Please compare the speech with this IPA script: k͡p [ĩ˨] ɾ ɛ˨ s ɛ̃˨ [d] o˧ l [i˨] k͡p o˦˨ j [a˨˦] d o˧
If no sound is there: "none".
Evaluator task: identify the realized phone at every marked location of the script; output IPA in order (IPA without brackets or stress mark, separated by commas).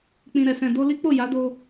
ĩ˨, d, i˦, a˨˦